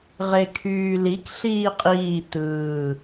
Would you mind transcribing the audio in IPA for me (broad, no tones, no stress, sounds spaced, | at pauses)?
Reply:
ʁ e kʰ yː l i k ɬ iː qʼ iː t̪ ɯː